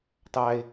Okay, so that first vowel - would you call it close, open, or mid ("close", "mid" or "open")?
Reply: open